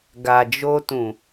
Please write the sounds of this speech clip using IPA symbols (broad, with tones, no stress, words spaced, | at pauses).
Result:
ɡa˨d͡ʒo˧tũ˨